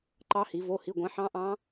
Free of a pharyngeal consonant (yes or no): no